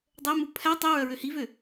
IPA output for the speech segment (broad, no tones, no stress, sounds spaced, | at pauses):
dˤ ɛ m u pʰ æ tˤ i ɹ œ ɹ ø h i v ø